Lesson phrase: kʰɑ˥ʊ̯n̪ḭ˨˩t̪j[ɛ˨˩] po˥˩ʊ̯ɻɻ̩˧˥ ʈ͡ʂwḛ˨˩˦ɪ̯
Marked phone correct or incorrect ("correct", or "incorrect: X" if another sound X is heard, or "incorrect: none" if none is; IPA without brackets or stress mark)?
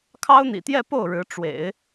incorrect: ɛ˥˧